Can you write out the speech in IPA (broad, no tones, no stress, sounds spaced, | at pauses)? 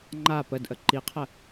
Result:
ŋ͡ǃ a p ə d ʔ ə ǃ i qʰ ə